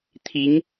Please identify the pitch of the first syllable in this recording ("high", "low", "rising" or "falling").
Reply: rising